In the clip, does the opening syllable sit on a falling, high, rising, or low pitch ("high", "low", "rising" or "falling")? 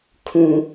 low